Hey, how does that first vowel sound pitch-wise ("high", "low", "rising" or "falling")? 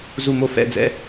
falling